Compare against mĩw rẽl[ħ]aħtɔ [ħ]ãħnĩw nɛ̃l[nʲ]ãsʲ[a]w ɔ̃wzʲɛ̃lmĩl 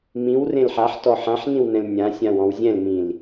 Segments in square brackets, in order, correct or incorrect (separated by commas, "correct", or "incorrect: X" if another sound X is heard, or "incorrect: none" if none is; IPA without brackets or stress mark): correct, correct, correct, incorrect: ã